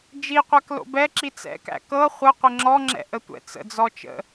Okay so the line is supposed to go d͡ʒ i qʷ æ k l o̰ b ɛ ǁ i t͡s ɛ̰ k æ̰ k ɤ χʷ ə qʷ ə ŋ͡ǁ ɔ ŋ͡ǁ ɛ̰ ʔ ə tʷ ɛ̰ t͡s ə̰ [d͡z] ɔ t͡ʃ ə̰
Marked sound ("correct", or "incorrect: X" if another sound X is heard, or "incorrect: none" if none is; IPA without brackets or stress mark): correct